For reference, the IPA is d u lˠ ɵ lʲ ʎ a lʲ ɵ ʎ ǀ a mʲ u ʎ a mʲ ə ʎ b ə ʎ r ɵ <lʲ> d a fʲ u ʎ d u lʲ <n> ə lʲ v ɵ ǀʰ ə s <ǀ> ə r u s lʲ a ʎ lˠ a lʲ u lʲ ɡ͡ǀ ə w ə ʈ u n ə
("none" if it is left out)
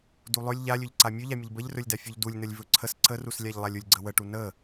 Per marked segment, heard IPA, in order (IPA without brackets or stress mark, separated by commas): lʲ, n, ǀ